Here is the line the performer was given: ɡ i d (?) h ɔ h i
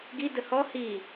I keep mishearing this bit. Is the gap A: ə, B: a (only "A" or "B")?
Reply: A